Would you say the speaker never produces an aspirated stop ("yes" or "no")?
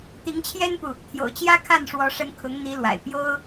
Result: no